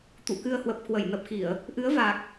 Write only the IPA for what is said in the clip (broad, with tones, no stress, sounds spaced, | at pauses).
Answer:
t̪ ṵ˧˨ k ɨ˧ ə̯ h w ə˨˩ p̚ k w ə˧˩ j n ə˨˩ p̚ x i˧˩˨ ə̯ | ʔ ɨ˨˦ ə̯ v a˨˩ k̚